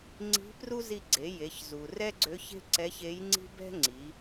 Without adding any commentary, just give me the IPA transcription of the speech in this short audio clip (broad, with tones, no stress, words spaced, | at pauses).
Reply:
ŋ͡ǀi̤˧˥pru˥ zi˧ɡ͡ǀe˩˧ je˩˧çzu˩rɛ˥ɡ͡ǀø˧˥ç e̤˥ǀɛ˧˥çe˧˥jŋ͡ǀi̤˥ bɛ̤˥ŋ͡ǀi˩˧